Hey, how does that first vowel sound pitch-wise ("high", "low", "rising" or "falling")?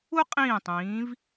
high